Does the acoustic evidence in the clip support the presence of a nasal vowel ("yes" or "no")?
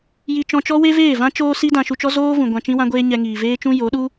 yes